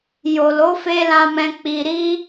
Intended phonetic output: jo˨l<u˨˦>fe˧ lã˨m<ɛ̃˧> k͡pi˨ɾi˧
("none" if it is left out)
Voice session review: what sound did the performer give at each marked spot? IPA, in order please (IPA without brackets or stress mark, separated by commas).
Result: o˨˦, ɛ̃˨